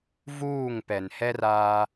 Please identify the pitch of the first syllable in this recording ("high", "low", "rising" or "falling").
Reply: falling